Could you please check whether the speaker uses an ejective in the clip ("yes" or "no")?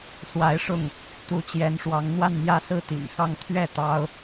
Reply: no